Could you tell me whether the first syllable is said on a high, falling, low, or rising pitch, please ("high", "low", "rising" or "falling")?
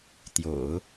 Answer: low